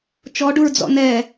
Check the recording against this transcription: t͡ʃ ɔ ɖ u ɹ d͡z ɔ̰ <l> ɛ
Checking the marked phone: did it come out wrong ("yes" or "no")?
yes